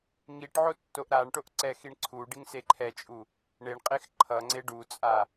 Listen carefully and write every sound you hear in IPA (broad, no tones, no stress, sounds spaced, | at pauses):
ŋ i ʈ ʕ o tː o ʔ ɾ a ɳ ʈ o ʔ ǀ ɛ x i ɳ ǀʰ u ɖ i ŋ s e ǃʰ ɛ t͡ʃʼ u | ɳ e ɳ qʼ e x ǃʰ ʌ ŋ͡ǀ e ɖ u t͡sʼ a